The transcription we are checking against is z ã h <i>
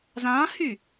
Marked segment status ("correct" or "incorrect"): incorrect